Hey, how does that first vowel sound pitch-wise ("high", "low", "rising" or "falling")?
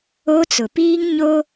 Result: high